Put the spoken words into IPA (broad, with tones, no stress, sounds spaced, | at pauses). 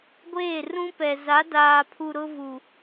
ɡʷ eː˦˨ r ũ˦ p ɛ˨ z a˨˦ d aː˨ pʰ u˨ ɾ ʊ˦ v u˨